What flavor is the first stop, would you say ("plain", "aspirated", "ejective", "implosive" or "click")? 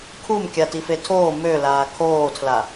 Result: aspirated